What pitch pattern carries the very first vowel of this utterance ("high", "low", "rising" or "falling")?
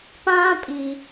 high